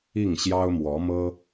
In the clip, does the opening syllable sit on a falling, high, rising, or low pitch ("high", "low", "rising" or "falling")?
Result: falling